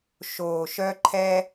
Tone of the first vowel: low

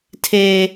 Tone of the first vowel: low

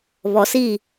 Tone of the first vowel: low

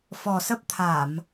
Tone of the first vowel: low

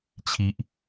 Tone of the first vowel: high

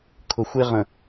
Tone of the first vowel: low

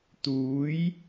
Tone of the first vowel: rising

